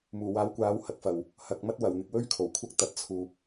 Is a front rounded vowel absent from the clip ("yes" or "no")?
yes